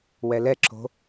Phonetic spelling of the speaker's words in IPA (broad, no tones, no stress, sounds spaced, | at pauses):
w ɛ l ɛ ǁ o̤